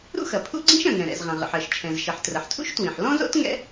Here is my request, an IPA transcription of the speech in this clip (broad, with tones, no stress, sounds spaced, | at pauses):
ɾ ṵ˥ x ɐ˩ pʰ ṵ˥ ɡ͡ǀ ĩ˥ ʃ ɐ̃˩ ŋ ɛ̃˩ ɾ ɛ̰˩ z ʁ ɐ̃˩ ʁ ə̰˩ ħ ɜ˩ ʃ t͡ʃʰ ɛ̃˩ z ʃ ə˩ ħ t r ə˩ ħ tʰ ṵ˥ ʃ t w ĩ˩ ħ l ɔ̃˥ z o̰˥ t ŋ ɛ̰˥